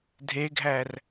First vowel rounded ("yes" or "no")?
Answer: no